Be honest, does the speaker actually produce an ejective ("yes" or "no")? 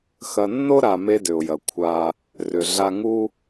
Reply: no